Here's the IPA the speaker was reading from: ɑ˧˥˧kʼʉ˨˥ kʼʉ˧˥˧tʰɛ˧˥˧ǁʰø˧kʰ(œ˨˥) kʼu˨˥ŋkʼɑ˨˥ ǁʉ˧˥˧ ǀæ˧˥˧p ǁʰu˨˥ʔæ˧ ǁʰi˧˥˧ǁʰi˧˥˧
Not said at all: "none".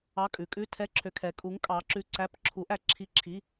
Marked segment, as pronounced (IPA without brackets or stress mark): ɛ˨˥